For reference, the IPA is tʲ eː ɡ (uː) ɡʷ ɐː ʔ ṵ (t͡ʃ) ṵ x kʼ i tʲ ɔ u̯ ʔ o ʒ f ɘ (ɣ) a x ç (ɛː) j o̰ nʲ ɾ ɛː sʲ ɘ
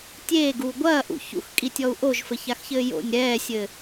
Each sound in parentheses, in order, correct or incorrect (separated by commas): correct, incorrect, incorrect, incorrect